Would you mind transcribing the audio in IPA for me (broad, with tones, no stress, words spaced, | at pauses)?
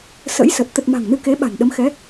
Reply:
sə̰˧˥jsə˨˩t̚ t̪ə˨˩t̚ ma̤˨˩ŋ nɨ˧ke˨˦ɓa̤˨˩n ɗə˨˦mxɛ˨˦